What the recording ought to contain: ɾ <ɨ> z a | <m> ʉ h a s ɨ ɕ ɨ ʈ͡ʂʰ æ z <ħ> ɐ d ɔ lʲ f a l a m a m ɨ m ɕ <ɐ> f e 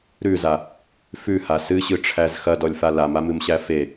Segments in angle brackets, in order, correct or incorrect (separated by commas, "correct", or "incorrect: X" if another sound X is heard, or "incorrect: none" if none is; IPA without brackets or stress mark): incorrect: ʉ, incorrect: f, incorrect: x, incorrect: æ